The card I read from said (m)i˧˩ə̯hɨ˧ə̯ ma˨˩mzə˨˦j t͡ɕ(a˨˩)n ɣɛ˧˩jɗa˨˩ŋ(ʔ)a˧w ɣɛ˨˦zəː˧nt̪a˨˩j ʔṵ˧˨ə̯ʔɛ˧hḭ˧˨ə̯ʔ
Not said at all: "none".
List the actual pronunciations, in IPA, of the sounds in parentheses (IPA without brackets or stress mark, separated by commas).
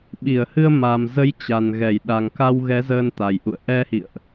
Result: ɓ, a˨˩, k